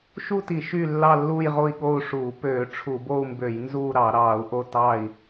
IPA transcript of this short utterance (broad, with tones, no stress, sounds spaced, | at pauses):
ʃ u˦˨ t i˧˩˧ ʃ y˦˨ lː ɑ˦˨ lː uː˦˨ j ʁ o˦˨ i̯ ɠ o˦˨ u̯ ʂ uː˧˩˧ p øː˧˩˧ ʈ͡ʂʰ u˧˩˧ b o˦˨ u̯ m b ø˧˩˧ j n z uː˦˨ ɾ ɑ˧˩˧ ɾ ɑː˧˩˧ u̯ ʔ o˦˨ t ɑ˦˨ i̯